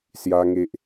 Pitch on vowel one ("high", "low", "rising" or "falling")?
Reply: high